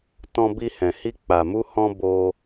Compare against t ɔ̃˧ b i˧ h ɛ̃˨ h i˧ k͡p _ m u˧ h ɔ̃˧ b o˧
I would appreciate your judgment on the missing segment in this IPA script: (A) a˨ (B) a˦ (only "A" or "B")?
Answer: A